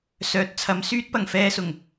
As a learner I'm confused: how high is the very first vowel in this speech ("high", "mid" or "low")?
mid